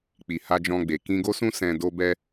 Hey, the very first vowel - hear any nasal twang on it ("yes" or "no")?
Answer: no